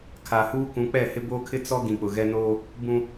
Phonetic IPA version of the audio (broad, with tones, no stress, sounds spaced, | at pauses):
kʰ a˨ h uː˦ k ũ˨˦ k͡p ɛ˦˨ h ɪ˦ b oː˦ kʰ ɪ˦ t͡s ɔ˦ ɡ ĩ˨ k͡p ʊ˨ ɣ ɛ˦ n oː˦ | b ũ˦